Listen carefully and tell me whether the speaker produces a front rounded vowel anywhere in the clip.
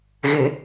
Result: no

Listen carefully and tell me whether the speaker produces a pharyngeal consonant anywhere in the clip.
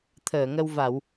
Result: no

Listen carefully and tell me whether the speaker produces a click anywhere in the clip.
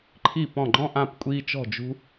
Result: yes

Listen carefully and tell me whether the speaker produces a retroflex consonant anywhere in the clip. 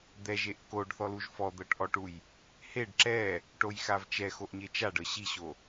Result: yes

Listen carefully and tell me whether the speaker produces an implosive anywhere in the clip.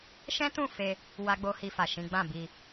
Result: no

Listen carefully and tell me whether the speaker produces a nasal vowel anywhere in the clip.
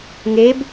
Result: no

